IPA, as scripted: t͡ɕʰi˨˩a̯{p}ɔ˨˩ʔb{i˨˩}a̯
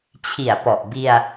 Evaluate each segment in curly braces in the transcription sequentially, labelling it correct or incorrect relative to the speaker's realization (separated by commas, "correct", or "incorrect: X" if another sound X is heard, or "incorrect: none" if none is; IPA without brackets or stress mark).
correct, incorrect: i˧